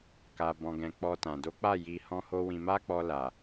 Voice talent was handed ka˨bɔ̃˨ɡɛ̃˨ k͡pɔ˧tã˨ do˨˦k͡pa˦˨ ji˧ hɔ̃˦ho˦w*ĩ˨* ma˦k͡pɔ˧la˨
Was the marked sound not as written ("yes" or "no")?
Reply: yes